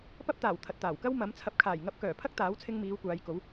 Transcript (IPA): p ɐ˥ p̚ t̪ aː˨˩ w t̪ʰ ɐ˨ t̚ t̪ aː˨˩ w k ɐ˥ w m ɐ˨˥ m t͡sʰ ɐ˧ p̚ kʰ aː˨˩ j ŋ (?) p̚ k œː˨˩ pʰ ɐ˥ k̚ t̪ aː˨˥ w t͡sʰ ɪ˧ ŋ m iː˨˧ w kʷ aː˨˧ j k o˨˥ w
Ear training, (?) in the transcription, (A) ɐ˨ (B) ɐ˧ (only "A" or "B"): B